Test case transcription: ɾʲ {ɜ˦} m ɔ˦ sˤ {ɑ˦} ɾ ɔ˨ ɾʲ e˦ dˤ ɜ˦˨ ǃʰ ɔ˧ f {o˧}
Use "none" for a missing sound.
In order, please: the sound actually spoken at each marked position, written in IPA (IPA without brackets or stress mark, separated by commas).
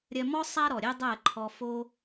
ɜ˧, a˦, o˦